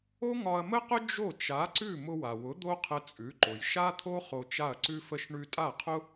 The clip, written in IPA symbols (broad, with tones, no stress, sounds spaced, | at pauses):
o˥ ŋ ɒ˧ ɐ̯ m ə˥ q ʊ˥ d͡ʒ o˥˩ t͡ʃ a˩˥ ǀ ʉ˥˩ m ʊ˧ w a˩ w ʊ˩˥ d̪ o˥ qʰ ə˧ t͡sʼ ʉ˩˥ ǃ ʊ˩ j ʃ a˥ t̪ʰ o˥ χ o˧ t͡ʃ a˥˩ ɐ̯ ǀ ʉ˥ f ə˥ ʃ ɳ ʉ˧ tʼ a˥˩ qʰ ʊ˥